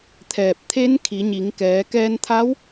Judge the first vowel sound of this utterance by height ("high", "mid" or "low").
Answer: mid